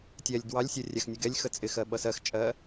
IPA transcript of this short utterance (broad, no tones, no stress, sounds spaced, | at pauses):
tʲ ɛ lʲ d w ɑ lʲ sʲ ɜ rʲ æ x nʲ ʊ ɡ ɛ lʲ x ə t͡sʼ ɪ x ɜ ɓ ʌ s ɜ x t͡ʃʼ ɜ